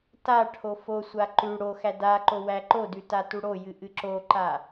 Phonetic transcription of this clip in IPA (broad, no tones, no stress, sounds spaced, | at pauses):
t a ʈʰ o f o sʷ a ǃ ʉ ɽ o x æ d a ǃ o w æ ǃ o d ʉ t a t u ɽ o j ɨ ʔ ɨ ǁ o ǃ a